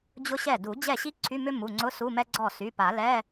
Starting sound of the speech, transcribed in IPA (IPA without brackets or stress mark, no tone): d͡ʑ